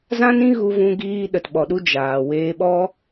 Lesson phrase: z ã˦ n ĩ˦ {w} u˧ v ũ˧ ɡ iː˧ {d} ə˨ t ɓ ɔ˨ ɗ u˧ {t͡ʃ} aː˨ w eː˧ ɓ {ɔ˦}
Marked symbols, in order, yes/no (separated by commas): no, no, no, yes